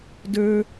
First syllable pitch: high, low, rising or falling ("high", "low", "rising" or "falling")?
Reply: high